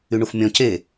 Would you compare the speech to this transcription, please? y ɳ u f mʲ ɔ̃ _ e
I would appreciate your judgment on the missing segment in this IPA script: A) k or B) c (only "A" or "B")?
B